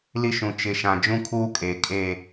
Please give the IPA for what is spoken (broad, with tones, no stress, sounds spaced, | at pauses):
l i˦ ʃ ũ˨ t͡ʃ ɪ˨ ʃ ã˨ d͡ʒ ũ˦ kʰ uː˦ kʼ eː˨ kʼ eː˦˨